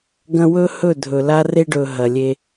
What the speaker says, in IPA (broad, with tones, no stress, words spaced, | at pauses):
ɡɐ̃˦ wɵ˦hɵ˦˨dʱɵ˨ la˦re˦ɖɵ˨ ɦɐ˨lʲe˦